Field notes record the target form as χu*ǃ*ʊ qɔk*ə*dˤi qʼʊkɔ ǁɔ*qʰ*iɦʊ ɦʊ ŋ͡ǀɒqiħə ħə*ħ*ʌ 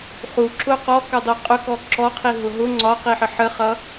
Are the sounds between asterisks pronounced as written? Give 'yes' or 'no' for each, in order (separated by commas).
no, no, yes, no